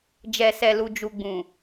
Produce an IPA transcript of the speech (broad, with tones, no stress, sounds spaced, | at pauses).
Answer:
d͡ʒ ɛ˨ s ɛ˨ l u˨ d͡ʒ u˨ ɡ͡b ũ˨